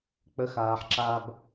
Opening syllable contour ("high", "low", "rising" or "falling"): high